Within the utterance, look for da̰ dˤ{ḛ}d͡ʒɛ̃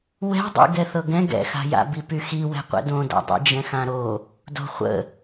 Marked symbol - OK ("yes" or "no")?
no